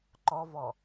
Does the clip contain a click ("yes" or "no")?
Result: yes